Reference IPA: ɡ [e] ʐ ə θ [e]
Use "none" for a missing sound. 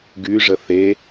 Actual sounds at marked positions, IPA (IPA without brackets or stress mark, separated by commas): y, e